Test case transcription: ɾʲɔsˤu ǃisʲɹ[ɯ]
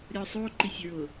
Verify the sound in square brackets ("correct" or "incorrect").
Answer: incorrect